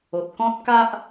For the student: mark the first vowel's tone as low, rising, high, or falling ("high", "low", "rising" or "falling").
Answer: low